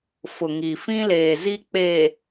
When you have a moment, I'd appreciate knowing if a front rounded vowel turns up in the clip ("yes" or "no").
no